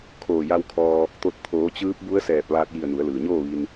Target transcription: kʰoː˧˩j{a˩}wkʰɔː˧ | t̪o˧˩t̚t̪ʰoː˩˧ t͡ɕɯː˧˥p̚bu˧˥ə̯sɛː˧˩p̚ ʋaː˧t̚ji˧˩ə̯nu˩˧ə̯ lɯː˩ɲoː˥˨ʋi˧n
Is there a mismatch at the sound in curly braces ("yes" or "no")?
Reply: yes